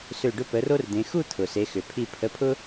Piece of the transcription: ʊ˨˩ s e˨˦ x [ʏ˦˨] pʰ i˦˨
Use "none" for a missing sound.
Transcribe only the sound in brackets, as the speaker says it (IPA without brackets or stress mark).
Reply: ʏ˨˩